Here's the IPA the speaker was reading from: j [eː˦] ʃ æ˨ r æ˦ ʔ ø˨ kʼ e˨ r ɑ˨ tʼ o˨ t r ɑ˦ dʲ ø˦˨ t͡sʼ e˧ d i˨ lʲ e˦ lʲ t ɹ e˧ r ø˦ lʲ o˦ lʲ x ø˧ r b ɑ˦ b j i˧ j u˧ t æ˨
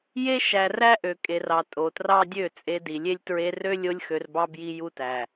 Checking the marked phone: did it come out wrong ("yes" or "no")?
yes